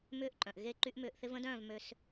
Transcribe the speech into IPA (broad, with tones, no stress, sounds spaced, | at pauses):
m ʏː˦ ʔ ǃʼ œ̃˨ ʔ ɣ e˦ ǃ y˦ ʔ m ʏː˧ ʔ θ ɪ˦ v ə̃˦ d œ̃ː˦˨ v m ø˧ s